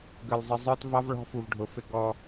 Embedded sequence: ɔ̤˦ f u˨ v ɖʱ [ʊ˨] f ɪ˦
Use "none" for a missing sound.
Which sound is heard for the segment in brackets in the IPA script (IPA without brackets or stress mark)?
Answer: ʊ˨